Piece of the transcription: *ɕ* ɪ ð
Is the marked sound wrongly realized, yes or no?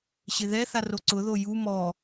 no